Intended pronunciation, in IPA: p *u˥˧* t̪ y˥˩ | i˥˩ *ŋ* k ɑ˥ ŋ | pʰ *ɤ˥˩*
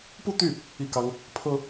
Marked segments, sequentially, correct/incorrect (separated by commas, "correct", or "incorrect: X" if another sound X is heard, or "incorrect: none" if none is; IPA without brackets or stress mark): correct, incorrect: none, incorrect: ɤ˥